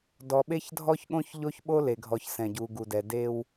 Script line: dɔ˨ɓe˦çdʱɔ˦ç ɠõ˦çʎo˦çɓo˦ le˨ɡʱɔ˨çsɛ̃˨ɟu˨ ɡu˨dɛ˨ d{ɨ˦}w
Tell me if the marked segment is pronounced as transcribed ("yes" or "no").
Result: no